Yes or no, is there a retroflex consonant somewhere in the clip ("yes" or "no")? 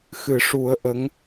yes